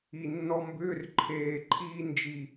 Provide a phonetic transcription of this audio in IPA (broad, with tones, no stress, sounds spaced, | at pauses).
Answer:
i˨˩ nː ɔ˧ m b ʏː˧˥˧ r ǃʰ eː˨˩ ǃʰ iː˧ n d͡ʒ i˨˩